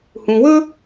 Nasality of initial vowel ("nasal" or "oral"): nasal